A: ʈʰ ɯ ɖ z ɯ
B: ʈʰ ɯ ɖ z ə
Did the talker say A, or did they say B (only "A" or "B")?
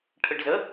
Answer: B